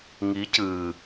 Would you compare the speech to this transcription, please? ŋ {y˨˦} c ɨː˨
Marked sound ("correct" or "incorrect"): incorrect